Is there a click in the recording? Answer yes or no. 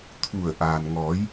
no